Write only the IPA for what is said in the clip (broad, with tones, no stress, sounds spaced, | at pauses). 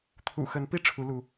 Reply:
t̪ʰ ṵ˨˩ x ə˨˦ n p i˦ ʈ͡ʂʰ u˨˦ l u˨˦